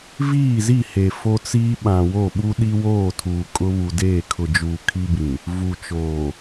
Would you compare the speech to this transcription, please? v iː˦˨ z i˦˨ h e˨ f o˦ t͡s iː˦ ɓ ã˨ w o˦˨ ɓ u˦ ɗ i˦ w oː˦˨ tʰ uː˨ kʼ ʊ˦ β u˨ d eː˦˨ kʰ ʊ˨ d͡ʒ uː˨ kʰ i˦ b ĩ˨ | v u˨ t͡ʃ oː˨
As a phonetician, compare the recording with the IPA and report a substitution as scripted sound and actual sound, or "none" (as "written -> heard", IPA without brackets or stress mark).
none